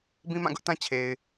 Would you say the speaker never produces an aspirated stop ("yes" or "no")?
no